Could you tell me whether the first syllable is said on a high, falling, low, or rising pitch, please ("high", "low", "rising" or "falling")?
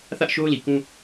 high